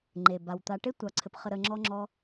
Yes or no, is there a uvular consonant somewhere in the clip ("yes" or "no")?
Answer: yes